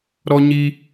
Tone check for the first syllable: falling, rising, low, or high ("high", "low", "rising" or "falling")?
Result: high